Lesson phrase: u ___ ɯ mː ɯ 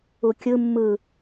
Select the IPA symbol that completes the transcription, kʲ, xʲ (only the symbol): kʲ